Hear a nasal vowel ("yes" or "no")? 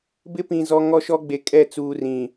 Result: yes